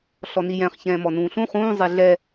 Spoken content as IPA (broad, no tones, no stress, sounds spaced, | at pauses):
ɬ ɔ n i j ɛ̃ χ ç ɛ̃ː m ɔ n ũː ɬ ũ χ ũː zˤ e ɮ ɛ